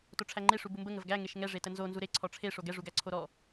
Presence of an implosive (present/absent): absent